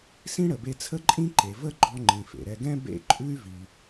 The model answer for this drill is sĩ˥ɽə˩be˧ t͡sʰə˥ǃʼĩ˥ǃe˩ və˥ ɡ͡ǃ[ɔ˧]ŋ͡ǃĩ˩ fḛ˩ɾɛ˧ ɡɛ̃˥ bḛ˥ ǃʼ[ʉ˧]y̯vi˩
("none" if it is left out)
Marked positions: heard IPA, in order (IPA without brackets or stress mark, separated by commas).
ɔ˧, ʉ˥